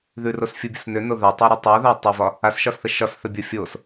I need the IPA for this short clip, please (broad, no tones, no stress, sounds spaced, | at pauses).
ð ʉ r o s fʲ u bʲ ə s n ʏ n o ð a tˤ a ɾ ʉ tˤ o ð a tˤ ʉ v ɒ | a s ʃ ɒ s θ ə ʃ ɒ s θ ə bʲ o fʲ o s